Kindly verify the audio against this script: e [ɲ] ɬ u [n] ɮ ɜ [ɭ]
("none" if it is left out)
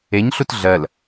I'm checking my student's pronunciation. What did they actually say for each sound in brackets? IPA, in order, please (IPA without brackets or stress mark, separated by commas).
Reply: ɲ, t, l